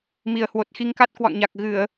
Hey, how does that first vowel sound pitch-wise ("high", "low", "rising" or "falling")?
low